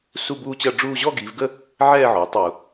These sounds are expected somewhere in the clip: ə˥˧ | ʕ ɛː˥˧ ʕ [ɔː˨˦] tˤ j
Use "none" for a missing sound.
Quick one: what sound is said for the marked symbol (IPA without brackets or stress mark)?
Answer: ɔː˨˦